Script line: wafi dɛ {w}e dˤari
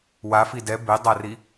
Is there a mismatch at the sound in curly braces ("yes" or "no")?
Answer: yes